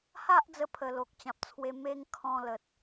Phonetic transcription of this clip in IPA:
h a˦ ʔ d͡z ə˧ pʰ ə˨˩ l o˨ k̚ t͡ɕ ã˨ p̚ t͡sʰ w e˧ m e˦ ŋ kʰ ɔ̃˧ l ə˨ t̚

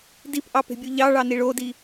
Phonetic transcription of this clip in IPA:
d i p ʔ ɑ p e̤ bʲ u ʎ ɑ ɭ ɑ n i ɭ o d i

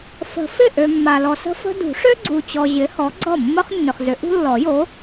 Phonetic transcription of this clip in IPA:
f ə̤˨˩˦ f ɪ˥˩ ʔ ø˨ mː a˨ l ɔ˨ s ə̤˥ f ə̤˥ d ṳ˨˩˦ ʂ ø˥ ɡ͡ǀ u˨ t͡ɕ ɔ˨ ʑ ɪ˨˥ h ɔ˨˥ ɡ͡ǀ ɔ˥˩ mː ə˥ χ nː ʏ˨ χ z ʏ˨˥ ʔ ṳ˥ lː ɔ˨˩˦ j o˨˥

